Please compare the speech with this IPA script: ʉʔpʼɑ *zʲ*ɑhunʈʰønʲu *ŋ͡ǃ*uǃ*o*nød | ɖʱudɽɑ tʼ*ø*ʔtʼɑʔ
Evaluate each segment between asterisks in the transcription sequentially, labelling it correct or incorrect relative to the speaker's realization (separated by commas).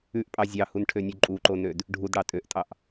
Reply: correct, incorrect, correct, correct